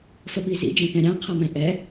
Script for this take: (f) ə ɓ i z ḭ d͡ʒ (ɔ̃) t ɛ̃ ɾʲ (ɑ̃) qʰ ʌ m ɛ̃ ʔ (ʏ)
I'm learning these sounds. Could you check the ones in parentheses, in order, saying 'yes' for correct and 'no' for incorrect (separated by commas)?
yes, no, yes, no